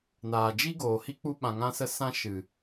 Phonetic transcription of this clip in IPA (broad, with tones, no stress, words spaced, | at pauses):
naː˨d͡ʒi˦ ɡoː˨hi˦ k͡pu˦ɓã˧ŋã˦sə˦ sã˦ʃɨ˨